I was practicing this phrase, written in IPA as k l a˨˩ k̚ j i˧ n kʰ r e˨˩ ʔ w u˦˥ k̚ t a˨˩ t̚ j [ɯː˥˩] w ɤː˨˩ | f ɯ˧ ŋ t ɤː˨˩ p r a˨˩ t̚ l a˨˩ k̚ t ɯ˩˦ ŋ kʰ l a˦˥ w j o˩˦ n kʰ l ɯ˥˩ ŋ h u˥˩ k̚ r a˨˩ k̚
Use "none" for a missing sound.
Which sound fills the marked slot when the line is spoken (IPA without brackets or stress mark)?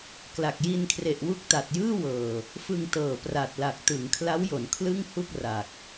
ɯː˥˩